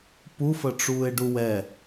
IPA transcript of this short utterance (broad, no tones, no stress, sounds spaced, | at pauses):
p u f ə ʈ͡ʂ uː e̯ ɖ u w ɛ